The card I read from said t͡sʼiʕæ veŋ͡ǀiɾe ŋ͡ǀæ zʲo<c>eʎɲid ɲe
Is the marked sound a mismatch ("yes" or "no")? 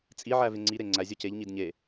no